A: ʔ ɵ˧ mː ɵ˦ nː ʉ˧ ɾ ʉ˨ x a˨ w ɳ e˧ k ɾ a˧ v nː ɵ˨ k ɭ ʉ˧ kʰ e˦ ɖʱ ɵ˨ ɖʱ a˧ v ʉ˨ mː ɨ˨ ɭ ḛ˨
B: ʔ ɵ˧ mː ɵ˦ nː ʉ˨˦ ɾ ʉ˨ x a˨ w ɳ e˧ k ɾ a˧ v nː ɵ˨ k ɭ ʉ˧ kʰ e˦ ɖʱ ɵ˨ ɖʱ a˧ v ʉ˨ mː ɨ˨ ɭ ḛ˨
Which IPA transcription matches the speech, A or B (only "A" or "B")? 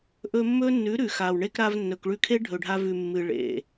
B